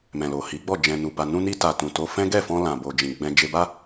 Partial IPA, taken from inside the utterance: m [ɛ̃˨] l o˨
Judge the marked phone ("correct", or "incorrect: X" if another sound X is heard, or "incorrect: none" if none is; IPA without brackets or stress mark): correct